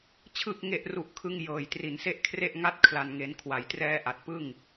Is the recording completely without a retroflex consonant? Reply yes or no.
yes